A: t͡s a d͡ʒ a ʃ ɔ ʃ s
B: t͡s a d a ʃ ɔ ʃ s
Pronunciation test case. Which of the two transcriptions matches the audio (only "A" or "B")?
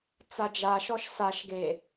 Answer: A